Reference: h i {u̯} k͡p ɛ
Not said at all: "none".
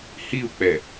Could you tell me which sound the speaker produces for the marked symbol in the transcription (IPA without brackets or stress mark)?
u̯